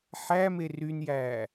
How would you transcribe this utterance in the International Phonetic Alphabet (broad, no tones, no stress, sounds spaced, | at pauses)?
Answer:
ħ æ m e r y n j æː